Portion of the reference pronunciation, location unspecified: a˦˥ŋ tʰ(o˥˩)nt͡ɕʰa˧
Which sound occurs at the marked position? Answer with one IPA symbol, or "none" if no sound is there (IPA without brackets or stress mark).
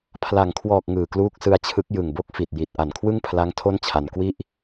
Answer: o˥˩